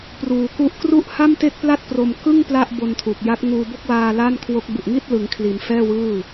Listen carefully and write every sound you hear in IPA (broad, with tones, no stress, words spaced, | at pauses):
pruː˩˦ku˦˥ʔ kru˥˩ʔ ha˥˩mte˥˩k̚ pla˥˩t̚pro˧mkɯ˥˩ŋ pla˥˩ʔbo˧ntʰu˨˩k̚ja˦˥t̚ ŋuː˧bo˥˩k̚waː˧ la˥˩nkʰwo˦˥k̚ bu˨˩ʔŋi˥˩t̚lɯ˩˦ŋkʰli˩˦n fɛː˥˩wɯː˥˩